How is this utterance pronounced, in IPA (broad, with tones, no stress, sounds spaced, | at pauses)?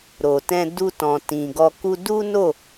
ɾ o˨ t ɛ̃˧ d u˧ t ɔ̃˨ t ĩ˨ ɡ ɔ˧ k u˧ d u˦ n o˦˨